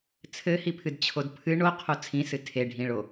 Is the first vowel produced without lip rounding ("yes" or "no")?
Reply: yes